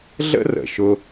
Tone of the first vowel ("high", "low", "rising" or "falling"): high